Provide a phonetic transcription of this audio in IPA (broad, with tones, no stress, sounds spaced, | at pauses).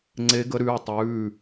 ŋ͡ǀ e˧˥ ɡ ə˧˥ ɾ ʉː˩˧˩ tˤ ʉː˩˧˩